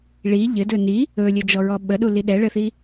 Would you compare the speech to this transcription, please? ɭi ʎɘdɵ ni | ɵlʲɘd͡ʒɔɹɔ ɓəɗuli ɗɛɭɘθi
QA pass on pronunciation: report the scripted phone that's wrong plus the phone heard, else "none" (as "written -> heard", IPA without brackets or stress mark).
none